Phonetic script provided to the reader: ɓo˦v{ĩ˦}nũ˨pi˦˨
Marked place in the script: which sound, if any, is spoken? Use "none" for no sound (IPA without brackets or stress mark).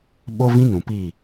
ĩ˦